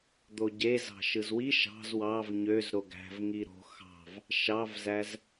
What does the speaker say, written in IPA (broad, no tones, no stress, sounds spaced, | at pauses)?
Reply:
d̪ o ɟ e z ɑ̤ ʃ ɯ z w i ʃ ɑ̤ z w ɑ v ɲ ø z ɾ o ɡ æ̤ v ŋ i ɾ o̤ x ɑ̤ v | ʃ ɑ v z æ z